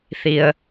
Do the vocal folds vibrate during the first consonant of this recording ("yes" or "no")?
no